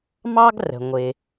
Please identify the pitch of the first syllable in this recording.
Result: high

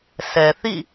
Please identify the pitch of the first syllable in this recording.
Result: low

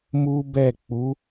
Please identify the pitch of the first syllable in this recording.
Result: high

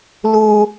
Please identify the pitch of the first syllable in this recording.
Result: low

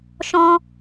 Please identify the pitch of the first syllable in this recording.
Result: high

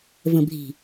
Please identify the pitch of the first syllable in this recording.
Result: low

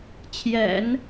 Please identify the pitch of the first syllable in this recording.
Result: low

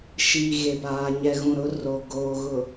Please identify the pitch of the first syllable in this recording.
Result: low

